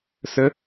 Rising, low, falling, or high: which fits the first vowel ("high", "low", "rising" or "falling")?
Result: high